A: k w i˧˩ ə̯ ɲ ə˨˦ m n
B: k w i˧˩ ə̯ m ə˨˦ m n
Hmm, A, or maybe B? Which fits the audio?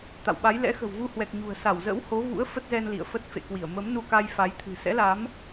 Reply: B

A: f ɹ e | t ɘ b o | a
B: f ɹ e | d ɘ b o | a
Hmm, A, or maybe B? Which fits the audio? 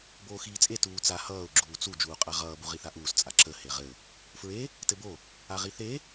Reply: A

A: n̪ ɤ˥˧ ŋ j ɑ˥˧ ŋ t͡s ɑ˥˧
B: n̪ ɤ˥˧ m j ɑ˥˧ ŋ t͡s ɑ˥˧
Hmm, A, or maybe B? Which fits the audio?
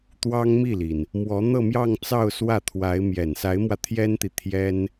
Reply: B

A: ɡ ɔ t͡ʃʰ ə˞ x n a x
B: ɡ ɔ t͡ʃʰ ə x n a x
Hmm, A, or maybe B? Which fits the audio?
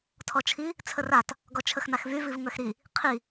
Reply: B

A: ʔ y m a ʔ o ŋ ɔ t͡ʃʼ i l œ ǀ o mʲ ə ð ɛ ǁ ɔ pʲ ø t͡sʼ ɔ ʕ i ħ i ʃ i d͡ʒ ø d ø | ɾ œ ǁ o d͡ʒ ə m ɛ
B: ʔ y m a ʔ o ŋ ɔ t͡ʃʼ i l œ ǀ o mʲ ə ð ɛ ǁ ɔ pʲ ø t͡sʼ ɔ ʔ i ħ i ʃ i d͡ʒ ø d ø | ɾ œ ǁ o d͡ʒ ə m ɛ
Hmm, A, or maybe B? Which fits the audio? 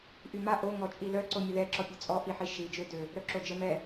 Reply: B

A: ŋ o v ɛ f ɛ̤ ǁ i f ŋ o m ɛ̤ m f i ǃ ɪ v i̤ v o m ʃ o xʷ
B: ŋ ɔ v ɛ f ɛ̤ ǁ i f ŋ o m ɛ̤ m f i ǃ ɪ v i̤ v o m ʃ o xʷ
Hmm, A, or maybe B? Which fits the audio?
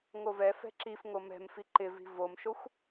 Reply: A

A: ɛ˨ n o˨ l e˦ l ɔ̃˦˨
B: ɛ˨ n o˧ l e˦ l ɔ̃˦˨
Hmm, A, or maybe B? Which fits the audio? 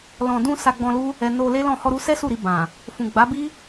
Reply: B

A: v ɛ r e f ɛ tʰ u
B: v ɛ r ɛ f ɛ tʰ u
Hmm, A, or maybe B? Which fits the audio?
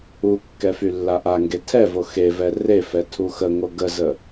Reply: A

